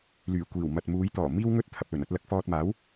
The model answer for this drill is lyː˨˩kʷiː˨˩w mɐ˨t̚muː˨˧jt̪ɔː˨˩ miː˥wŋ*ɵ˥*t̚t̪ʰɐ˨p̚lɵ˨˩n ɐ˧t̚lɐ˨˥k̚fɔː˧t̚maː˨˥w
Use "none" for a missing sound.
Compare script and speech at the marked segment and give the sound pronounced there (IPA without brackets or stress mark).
ɵ˥